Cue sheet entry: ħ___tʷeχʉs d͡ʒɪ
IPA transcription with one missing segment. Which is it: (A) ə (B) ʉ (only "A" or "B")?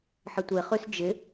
A